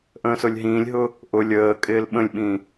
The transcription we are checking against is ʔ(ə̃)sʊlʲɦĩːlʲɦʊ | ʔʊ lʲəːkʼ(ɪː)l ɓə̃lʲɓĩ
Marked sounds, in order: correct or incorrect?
incorrect, correct

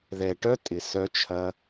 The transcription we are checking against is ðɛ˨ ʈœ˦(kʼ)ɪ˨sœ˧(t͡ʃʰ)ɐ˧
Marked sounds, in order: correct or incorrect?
incorrect, correct

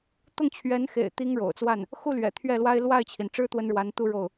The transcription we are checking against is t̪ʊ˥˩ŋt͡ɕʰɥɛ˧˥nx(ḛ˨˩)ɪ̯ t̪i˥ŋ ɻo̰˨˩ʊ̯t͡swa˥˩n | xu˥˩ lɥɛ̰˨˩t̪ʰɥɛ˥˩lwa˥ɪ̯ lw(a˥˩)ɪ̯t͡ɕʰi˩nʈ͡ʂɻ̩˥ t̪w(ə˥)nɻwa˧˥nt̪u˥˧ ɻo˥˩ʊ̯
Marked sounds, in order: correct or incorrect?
correct, correct, correct

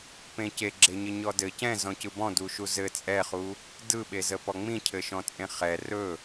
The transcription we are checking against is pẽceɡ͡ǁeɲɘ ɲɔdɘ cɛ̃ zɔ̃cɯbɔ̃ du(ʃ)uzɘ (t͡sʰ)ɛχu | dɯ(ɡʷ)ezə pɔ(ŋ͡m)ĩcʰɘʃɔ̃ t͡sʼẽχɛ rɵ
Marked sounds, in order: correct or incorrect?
correct, incorrect, incorrect, correct

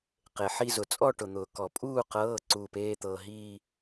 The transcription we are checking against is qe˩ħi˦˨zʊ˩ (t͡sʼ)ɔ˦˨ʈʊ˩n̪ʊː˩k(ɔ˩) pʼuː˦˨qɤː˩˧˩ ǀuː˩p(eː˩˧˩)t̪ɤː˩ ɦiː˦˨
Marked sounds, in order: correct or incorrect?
correct, correct, correct

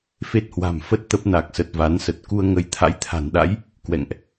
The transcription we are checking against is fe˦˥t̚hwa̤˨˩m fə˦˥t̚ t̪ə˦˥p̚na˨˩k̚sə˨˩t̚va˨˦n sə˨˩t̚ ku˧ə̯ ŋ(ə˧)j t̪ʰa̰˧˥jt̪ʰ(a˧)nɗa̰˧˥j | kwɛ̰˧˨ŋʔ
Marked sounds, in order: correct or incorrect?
correct, incorrect

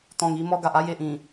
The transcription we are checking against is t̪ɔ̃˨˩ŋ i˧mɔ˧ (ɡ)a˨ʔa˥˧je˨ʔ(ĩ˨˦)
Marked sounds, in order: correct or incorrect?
correct, incorrect

